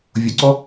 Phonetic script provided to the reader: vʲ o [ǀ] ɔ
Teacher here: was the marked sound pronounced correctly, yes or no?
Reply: yes